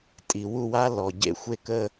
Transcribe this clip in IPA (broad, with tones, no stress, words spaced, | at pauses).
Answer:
tʼi˨wu˦˨wa˦lɔ˨ ɟḛ˦xʷe˦kə˦